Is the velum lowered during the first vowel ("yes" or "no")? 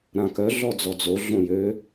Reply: yes